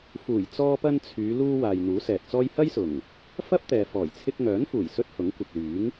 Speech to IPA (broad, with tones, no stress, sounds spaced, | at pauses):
f uː˨˩ j t͡s ɔː˧ p ɐ˧ n t͡sʰ yː˨˧ l uː˧ w aː˨ j n̪ uː˨˥ s ɛː˨ t̚ t͡s ɔː˥ j h ɐ˥ j s ʊ˨˩ ŋ | f ɐ˥ p̚ t̪ ɛː˨ f ɔː˨˩ j t͡sʰ ɪ˧ k̚ ŋ œː˨˥ n f uː˨˩ j s ɵ˥ t̚ h ʊ˨˥ ŋ kʷ ɪ˨ k̚ l yː˨˥ ŋ